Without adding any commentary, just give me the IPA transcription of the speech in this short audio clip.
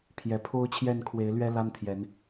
pʰjɛ˨˩pʰo˦ʊ̯t͡ɕʰjɛ˥˨n kʰwe˨˦ɪ̯lɥɛ˦ la˦nt̪ʰjɛ˨˦n

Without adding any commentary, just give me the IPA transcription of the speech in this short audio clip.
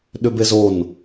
ɗʏbezon

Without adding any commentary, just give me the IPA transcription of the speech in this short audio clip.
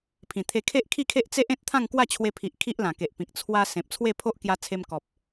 pʰĩ˨˩t̪ʰe˧ kʰe˦ʔkʰi˥˧kʰe˦ʔ t͡se˦ʔẽ˦t̚ t̪ʰã˥˧ŋkwa˥˧t͡ɕʰwe˧pʰi˨ʔ kʰi˦ʔlã˨˩ke˨ʔpĩ˨k̚ t͡sʰwa˧ sẽ˨p̚t͡sʰwe˥˧pʰo˦ʔ kja˧t͡sʰe˧mkɔ˨p̚

